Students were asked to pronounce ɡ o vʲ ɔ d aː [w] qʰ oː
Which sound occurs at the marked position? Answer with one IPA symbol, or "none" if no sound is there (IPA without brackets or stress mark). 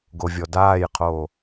j